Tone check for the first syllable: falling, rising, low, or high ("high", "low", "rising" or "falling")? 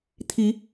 rising